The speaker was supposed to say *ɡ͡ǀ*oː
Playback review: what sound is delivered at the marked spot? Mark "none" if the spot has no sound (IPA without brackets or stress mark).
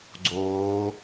ɡ͡ǀ